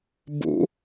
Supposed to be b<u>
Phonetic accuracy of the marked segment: incorrect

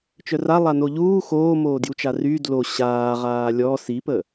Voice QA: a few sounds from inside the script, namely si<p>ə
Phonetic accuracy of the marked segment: correct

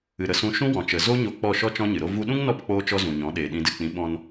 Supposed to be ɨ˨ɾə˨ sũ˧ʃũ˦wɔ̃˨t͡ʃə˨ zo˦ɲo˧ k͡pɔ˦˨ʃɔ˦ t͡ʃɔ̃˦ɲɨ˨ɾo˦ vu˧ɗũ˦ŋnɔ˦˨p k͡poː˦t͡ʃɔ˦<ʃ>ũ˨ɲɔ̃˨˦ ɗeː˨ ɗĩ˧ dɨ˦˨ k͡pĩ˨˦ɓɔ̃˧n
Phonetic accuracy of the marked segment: incorrect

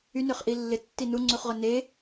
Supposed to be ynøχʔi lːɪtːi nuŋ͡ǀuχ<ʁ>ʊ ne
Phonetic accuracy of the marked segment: correct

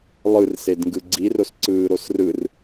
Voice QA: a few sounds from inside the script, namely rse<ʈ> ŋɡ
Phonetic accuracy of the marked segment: incorrect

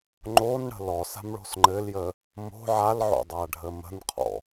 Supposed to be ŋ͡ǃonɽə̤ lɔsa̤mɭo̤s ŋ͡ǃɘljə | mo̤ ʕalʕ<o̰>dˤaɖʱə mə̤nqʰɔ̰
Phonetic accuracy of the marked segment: correct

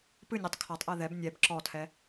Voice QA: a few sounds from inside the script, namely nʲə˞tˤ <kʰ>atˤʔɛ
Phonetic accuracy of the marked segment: correct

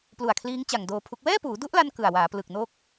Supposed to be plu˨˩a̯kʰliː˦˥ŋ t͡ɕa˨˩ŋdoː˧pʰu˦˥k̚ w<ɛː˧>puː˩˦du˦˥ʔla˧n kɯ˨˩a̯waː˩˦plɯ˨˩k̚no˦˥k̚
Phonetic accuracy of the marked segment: incorrect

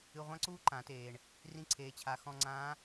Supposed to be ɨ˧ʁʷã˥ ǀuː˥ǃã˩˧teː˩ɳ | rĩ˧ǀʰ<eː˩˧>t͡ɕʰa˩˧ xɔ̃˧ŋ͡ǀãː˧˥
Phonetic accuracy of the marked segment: correct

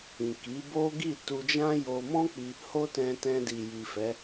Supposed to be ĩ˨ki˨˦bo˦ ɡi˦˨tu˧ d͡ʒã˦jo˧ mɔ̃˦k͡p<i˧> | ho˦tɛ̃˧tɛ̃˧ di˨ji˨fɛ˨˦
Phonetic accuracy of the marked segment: correct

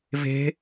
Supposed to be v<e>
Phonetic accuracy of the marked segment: incorrect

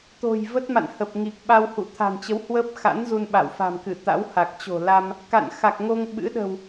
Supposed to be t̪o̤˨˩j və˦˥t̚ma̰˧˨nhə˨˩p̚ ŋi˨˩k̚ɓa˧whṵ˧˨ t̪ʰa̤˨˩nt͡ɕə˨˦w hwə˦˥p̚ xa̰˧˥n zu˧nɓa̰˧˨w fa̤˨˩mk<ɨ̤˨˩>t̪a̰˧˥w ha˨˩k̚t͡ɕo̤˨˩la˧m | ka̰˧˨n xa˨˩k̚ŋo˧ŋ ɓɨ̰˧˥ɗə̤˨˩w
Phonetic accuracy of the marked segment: incorrect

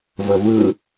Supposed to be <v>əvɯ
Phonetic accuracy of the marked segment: correct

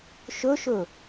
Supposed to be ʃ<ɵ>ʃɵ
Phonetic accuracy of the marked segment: correct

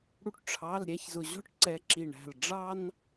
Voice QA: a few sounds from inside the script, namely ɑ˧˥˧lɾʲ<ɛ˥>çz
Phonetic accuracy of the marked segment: incorrect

